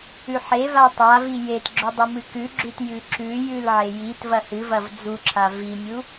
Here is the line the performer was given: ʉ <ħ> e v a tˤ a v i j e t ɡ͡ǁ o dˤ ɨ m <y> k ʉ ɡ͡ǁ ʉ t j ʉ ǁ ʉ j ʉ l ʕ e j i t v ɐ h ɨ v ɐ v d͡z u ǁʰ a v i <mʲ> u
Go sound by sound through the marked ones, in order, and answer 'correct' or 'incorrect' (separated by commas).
correct, incorrect, correct